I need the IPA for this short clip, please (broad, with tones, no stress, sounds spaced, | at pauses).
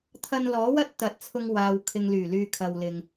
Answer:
t̪ʰ ɐ˧ n l ɔː˨˥ w ɐ˥ t̚ t̪ ɐ˨˥ t̚ t͡sʰ ʊ˧ ŋ w aː˨ w kʰ ɪ˨ ŋ l yː˨˩ l yː˨ kʰ ɐ˨ w l ɪ˨ ŋ